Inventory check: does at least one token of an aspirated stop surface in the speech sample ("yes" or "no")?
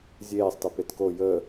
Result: no